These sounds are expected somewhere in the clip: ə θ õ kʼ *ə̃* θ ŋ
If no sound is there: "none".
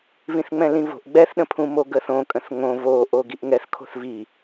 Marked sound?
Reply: ə̃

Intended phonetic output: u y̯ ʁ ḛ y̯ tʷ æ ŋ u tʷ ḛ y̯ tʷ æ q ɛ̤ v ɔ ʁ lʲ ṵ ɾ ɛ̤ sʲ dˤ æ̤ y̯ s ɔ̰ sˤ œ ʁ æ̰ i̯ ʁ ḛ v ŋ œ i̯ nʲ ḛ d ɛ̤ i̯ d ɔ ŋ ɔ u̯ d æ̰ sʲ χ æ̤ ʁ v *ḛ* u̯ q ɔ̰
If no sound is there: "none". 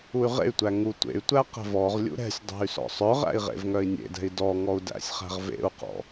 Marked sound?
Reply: ḛ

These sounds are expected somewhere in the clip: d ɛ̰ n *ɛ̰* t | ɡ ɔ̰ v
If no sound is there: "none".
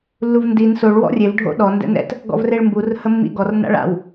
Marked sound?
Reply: ɛ̰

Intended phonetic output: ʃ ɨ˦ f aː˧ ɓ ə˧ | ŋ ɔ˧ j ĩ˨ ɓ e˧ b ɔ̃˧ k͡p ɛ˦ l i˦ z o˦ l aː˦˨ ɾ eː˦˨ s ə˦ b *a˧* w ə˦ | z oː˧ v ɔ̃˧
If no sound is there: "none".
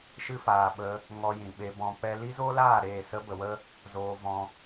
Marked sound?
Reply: ə˧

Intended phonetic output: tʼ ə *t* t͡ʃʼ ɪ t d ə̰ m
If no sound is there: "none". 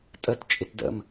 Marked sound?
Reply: t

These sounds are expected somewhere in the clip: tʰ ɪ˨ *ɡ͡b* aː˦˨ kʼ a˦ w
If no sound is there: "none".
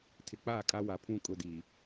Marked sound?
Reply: k͡p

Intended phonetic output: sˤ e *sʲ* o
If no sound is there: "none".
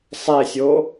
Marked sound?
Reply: sʲ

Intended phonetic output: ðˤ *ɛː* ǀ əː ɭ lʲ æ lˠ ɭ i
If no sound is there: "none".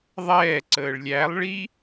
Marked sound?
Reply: ɛː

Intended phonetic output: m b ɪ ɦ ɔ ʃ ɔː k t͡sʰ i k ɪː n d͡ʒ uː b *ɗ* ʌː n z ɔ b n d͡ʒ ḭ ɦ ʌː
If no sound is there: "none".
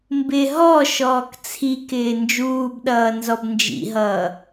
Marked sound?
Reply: ɗ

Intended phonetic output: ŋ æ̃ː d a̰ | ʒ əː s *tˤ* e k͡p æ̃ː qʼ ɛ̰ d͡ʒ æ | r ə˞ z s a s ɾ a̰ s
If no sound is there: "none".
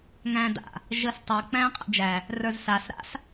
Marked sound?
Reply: tˤ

